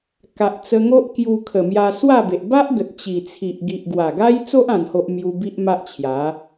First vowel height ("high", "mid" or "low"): low